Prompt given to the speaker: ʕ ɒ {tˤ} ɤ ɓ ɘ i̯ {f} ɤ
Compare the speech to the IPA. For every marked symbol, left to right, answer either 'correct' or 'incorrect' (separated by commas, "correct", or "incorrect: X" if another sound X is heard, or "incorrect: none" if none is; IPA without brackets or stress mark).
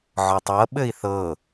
correct, incorrect: θ